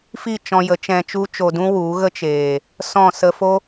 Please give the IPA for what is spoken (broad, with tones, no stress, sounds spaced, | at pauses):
f i˦˨ t͡ʃ ɔ̃˧ j ə˨˦ t͡ʃ ɛ̃˧ t͡ʃ u˦ t͡ʃ o˧ d ũ˦ w u˨˦ ɣ ə˦ t͡ʃ eː˨ | s ɔ̃˦˨ s ə˧ f o˦